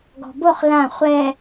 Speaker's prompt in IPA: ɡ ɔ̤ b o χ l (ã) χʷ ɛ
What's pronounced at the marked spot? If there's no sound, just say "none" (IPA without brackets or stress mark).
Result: ã